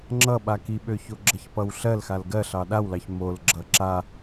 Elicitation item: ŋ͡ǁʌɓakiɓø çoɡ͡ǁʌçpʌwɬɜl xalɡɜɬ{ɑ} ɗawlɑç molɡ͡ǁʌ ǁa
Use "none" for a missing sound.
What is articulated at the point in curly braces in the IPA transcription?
ɑ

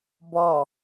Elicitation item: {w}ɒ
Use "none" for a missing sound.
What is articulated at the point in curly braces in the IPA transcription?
b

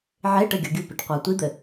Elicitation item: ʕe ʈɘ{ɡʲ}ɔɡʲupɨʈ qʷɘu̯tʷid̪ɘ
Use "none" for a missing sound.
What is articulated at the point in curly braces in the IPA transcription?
ɡʲ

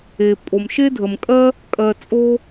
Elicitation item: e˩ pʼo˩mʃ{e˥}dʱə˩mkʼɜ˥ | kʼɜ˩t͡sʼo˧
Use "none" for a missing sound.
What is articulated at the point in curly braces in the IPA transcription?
e˥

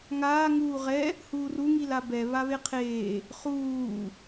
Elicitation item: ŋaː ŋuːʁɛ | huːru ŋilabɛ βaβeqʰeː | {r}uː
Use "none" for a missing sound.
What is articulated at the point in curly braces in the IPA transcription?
χ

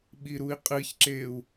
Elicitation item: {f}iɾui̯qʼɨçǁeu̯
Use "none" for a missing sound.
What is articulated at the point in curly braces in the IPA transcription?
ɓ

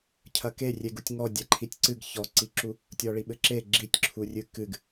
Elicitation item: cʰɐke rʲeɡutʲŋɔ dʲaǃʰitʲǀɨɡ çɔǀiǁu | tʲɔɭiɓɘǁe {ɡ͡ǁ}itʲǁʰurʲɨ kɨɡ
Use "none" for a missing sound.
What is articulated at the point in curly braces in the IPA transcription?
ɡ͡ǁ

